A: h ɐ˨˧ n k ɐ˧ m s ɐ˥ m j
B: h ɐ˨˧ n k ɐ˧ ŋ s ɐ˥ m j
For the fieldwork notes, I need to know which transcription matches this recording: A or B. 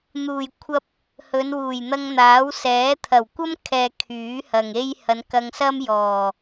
B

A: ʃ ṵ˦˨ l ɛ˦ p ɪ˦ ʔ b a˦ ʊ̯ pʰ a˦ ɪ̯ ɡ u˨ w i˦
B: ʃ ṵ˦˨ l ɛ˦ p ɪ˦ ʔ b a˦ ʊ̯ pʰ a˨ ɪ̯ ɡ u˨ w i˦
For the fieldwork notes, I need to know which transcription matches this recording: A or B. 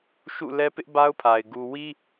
B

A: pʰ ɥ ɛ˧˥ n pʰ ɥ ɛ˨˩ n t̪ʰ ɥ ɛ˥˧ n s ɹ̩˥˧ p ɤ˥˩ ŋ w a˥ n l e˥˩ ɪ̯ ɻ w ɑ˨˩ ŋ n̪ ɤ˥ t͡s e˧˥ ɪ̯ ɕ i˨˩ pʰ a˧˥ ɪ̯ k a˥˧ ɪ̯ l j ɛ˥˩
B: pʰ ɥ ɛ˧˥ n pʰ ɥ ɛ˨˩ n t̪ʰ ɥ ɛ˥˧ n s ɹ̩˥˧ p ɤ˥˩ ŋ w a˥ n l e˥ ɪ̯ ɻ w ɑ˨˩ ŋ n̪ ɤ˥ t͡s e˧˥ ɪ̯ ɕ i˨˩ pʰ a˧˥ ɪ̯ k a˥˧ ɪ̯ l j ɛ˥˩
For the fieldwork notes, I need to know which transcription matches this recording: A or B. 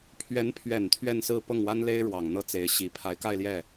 B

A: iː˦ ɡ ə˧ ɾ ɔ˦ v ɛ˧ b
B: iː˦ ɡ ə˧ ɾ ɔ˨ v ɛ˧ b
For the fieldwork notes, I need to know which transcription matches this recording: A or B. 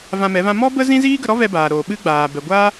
A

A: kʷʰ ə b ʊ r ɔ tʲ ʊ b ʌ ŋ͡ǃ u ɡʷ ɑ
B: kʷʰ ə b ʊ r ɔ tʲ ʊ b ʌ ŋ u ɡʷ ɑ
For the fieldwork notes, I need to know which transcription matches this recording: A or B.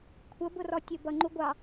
A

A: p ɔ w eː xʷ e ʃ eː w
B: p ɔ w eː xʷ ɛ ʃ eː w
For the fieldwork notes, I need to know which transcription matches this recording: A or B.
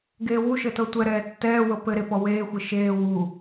A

